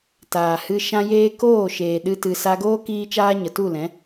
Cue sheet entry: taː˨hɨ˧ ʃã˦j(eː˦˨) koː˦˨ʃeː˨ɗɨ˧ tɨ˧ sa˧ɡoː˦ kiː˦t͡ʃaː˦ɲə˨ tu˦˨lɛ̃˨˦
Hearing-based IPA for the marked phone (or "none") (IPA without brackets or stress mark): eː˦